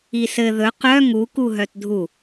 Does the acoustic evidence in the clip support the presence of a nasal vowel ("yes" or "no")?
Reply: no